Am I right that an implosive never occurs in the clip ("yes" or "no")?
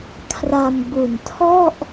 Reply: yes